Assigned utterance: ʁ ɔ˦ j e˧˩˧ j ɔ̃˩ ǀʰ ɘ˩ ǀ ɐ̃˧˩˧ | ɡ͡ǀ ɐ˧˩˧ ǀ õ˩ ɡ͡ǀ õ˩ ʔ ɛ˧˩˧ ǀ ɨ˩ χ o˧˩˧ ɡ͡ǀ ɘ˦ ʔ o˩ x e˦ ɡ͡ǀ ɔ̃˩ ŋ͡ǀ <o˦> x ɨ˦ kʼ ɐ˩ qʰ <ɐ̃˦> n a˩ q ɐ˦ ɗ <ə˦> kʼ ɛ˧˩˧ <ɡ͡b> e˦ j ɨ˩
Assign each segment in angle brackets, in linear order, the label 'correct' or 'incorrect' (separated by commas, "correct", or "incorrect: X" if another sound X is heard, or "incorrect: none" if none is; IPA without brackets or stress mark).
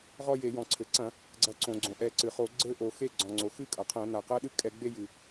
incorrect: o˩, incorrect: ɐ̃˧˩˧, incorrect: ɨ˦, correct